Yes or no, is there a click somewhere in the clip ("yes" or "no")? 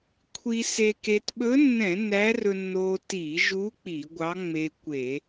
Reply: no